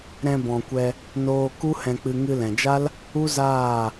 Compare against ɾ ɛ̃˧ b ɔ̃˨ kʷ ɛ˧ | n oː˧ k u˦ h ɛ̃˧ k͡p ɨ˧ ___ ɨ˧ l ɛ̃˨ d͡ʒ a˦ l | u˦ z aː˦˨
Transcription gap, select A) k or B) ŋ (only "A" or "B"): B